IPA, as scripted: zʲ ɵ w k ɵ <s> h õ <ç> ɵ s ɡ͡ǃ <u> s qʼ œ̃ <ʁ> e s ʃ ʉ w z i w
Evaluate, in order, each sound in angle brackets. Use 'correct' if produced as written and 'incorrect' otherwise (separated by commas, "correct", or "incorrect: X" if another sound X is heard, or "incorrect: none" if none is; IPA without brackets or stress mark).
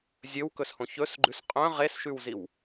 correct, correct, incorrect: ʉ, correct